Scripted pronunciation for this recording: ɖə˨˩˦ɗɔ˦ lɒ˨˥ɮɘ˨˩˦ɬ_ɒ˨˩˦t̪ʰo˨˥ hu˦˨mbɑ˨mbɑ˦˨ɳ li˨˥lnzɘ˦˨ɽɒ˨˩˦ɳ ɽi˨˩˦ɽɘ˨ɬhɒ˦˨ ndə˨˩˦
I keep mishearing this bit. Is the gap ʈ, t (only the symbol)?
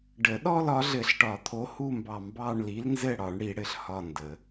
ʈ